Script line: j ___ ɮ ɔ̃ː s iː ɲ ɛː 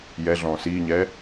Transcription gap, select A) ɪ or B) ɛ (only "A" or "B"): B